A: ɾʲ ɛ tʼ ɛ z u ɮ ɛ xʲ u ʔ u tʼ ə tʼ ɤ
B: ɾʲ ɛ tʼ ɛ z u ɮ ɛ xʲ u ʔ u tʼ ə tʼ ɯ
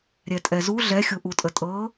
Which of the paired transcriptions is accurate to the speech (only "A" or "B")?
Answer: A